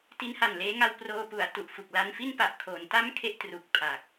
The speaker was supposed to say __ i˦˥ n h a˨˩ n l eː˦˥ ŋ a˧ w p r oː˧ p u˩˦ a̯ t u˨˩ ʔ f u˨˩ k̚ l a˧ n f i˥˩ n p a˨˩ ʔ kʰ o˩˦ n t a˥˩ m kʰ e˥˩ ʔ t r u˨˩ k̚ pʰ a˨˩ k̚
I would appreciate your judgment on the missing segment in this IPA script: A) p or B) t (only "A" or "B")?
B